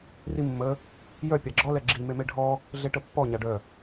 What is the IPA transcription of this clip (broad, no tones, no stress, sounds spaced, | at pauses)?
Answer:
r i mː ə | j œ pʲ a ɡ͡ǁ ɔ l ɛ ɡ͡ǁ i m e m e ɖʱ ɔ | ɮ e ʈ ə pː ɔ ɲ a ɖ œ